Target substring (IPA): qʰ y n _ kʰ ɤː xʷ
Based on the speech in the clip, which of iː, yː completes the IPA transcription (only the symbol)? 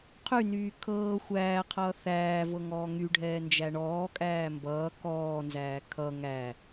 yː